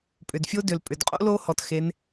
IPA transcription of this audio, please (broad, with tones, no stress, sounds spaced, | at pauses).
pʼ ʏ˩ d fʲ o˥ d ʏ˩ l pʼ ʏ˩ d qʼ o̰˥ l o˧˥ h ɔ˩ t x e˩˧ n